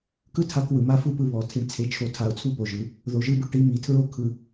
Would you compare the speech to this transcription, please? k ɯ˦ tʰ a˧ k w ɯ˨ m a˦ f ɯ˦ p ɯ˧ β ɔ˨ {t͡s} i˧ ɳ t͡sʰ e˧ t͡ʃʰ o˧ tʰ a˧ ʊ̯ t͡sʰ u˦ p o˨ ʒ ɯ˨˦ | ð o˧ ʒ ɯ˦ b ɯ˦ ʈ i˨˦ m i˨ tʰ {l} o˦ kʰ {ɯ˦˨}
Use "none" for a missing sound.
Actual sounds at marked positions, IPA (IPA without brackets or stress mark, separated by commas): tʰ, ɹ, ɯ˧